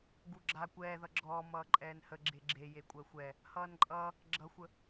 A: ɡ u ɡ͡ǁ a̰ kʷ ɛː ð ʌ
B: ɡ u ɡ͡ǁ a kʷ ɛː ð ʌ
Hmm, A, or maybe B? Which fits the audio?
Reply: B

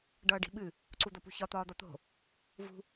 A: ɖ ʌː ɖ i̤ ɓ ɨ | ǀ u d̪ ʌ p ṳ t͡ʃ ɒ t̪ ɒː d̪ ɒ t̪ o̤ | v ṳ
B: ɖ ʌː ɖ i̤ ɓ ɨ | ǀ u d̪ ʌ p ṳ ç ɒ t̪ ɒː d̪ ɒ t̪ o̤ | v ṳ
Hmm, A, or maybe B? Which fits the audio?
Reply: B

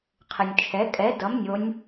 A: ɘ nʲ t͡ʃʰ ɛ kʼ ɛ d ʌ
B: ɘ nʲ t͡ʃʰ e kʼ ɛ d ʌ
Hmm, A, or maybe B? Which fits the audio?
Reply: A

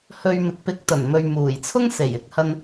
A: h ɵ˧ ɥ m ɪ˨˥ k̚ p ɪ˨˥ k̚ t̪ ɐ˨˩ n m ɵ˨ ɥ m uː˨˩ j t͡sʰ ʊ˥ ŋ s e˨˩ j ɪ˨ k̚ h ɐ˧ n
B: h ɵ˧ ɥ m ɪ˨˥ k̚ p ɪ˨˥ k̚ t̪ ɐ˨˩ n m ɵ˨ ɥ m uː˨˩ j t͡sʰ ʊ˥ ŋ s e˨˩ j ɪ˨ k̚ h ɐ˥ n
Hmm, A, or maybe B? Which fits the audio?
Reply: A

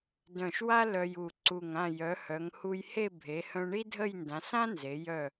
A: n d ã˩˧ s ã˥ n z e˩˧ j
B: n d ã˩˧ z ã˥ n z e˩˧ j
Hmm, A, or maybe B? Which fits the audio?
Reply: A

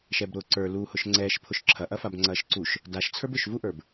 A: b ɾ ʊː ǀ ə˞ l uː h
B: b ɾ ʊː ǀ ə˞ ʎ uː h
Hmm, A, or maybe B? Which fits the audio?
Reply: A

